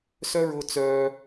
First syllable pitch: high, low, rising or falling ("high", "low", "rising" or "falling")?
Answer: high